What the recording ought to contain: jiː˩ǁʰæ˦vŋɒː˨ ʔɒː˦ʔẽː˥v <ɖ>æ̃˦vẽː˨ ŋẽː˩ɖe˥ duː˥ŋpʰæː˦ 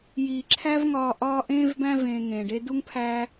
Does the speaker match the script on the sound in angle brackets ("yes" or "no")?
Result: no